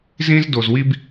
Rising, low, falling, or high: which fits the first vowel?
high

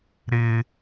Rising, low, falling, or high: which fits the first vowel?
high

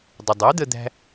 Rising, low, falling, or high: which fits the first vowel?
low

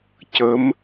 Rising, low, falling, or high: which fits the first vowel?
rising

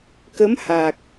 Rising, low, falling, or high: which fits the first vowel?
rising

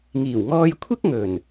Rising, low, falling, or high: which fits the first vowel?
low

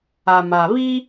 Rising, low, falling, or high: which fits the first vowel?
low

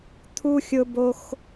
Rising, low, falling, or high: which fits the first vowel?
high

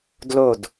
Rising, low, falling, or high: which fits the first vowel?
falling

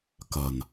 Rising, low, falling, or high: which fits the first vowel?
low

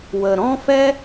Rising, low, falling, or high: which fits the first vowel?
low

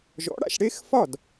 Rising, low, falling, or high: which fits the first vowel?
rising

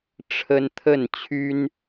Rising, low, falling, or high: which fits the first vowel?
high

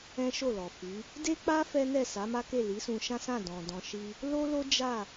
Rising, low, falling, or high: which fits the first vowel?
high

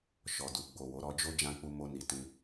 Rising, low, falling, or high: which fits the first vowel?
low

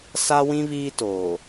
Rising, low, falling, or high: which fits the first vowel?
high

